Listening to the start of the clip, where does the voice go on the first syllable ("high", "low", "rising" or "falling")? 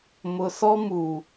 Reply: low